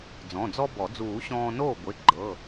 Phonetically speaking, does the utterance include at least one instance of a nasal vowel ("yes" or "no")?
yes